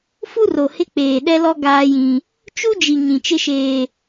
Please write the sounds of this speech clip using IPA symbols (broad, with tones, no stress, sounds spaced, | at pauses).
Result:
f u˦ r o˨ h ɪ˦ k͡p eː˨ ɗ ɛ˦ l ɔ˦ ɡ aː˦ j ĩ˦ | t͡ʃ u˦ d͡ʒ i˨ ɲ ĩ˨ t͡ʃ ɪ˦ ʃ eː˦